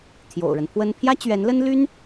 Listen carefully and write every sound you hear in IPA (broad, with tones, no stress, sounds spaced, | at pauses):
t̪ʰ j o̰˨˩ ʊ̯ ɻ ə˦ n pʰ w ə˥ n pʰ j ä˥ t͡ɕ ɥ ɛ˧˥ n l ə˥ n l y˥ n